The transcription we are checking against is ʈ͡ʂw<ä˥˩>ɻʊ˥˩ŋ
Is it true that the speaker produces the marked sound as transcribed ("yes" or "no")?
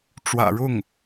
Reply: no